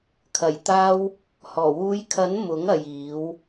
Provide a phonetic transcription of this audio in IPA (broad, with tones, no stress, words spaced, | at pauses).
kʰɐ˨˩jt̪aː˧w | hɔː˨˩wuː˨˧jkʰɐ˨˥n mʊ˨˥ŋɐ˨jiː˨˧w